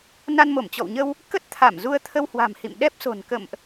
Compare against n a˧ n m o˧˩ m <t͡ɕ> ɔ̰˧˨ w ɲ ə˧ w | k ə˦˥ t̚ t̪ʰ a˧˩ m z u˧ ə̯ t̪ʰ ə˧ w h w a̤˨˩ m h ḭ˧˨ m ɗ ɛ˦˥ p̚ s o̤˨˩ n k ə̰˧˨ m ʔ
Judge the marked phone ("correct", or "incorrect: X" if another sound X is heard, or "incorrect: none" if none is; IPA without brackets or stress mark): correct